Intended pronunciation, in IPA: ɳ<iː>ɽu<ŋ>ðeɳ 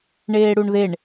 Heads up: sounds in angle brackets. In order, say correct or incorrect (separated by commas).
incorrect, incorrect